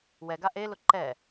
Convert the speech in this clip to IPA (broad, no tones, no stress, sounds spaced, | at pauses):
w ɛ ɡ a ʔ e l ʊ ǃ ɛ